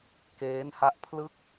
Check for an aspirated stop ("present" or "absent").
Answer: present